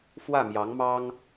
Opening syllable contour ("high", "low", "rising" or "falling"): falling